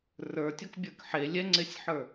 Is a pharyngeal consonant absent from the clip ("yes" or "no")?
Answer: no